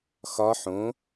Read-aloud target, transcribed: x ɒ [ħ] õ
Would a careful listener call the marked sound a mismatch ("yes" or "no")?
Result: no